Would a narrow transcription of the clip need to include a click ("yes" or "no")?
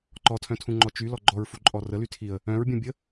yes